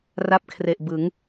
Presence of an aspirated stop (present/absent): present